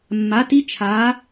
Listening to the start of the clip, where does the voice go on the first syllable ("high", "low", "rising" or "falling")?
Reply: rising